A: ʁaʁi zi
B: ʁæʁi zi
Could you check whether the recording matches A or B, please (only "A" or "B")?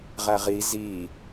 B